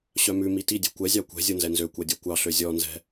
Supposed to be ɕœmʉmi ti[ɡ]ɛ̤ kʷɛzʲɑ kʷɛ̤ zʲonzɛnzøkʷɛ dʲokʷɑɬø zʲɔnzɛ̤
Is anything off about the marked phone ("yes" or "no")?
yes